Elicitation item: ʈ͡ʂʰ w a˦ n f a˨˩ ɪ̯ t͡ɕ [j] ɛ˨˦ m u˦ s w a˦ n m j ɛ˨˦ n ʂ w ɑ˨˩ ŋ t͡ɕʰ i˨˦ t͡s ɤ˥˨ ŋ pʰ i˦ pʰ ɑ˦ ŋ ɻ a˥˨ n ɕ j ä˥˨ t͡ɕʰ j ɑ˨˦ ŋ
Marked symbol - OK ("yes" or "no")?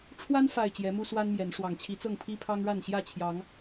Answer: yes